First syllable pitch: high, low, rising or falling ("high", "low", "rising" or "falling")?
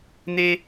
high